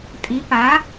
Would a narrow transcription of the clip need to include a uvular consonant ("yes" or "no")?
no